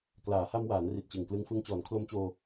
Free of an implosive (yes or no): yes